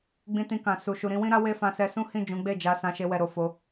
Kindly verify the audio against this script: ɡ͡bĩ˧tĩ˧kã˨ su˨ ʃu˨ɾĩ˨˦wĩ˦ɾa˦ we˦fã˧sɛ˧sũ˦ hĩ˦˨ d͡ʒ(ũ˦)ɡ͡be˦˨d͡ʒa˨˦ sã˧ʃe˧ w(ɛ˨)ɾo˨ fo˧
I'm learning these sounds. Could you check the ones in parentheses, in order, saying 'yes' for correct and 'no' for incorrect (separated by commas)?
no, yes